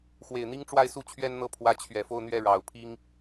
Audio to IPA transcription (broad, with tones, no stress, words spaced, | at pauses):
xwe˨˩ɪ̯n̪i˥ŋ ʈ͡ʂwa˥˧ɪ̯su˥˩ t͡ɕʰɥɛ˥nn̪ɤ˥˩ pʰwä˧˥ t͡ɕʰɥɛ˨˩fo˥˧ʊ̯n̪ɥɛ˥˩ ɻɑ˨˩ʊ̯pʰi˥ŋ